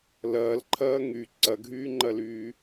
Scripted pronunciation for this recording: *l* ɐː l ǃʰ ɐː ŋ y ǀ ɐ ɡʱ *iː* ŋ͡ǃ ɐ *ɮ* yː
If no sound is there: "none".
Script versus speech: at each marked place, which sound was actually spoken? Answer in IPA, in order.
l, yː, l

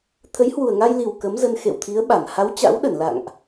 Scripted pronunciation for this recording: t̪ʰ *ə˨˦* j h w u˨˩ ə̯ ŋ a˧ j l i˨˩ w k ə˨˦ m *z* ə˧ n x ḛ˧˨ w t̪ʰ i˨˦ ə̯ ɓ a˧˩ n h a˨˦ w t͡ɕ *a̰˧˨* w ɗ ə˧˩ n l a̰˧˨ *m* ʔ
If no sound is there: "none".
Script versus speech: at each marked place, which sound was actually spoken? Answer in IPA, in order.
ə˨˦, z, a̰˧˥, ŋ

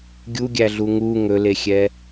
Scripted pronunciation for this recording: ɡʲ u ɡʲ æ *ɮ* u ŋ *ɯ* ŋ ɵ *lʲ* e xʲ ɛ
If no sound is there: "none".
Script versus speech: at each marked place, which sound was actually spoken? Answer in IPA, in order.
ɮ, u, l

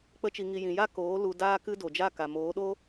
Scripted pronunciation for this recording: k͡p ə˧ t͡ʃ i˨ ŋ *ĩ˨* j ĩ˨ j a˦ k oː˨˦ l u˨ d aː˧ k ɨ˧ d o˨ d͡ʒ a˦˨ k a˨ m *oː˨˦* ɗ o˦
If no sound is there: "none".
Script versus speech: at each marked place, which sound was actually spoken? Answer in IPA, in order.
i˨, oː˨˦

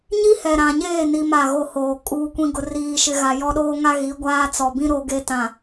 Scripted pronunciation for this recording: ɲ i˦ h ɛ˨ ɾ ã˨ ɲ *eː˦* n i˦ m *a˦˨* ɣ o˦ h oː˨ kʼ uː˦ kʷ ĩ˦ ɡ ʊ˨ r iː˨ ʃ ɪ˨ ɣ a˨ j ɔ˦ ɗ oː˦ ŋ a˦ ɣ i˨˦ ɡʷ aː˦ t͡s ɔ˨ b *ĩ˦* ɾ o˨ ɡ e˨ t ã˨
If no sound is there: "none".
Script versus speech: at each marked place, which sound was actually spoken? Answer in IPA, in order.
eː˦˨, a˦˨, ĩ˦

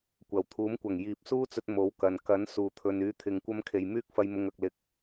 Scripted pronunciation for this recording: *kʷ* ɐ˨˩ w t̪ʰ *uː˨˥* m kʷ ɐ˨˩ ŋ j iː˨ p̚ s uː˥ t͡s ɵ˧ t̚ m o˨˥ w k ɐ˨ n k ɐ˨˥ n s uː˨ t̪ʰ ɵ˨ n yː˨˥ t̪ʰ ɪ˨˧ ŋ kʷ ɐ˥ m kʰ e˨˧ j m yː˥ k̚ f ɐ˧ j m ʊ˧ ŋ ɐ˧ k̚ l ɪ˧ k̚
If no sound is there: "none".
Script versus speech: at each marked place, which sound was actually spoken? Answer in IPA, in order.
kʷ, uː˨˥

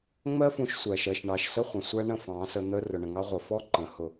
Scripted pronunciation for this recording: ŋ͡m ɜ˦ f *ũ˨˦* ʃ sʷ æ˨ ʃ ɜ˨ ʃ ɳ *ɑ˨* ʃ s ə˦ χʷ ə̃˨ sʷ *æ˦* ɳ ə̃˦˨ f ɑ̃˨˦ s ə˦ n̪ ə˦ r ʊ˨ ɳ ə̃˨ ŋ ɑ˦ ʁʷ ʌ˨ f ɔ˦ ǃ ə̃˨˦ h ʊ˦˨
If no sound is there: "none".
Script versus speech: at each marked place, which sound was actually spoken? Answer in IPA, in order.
ũ˨˦, ɑ˨, æ˦

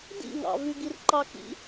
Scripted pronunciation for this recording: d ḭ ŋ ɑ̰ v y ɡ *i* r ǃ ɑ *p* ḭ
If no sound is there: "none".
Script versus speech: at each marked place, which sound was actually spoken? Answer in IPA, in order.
i, k

